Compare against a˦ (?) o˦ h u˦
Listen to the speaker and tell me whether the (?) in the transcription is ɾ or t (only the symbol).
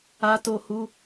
t